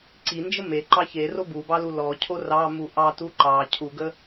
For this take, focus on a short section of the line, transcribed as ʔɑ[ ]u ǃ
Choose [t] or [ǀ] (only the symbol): t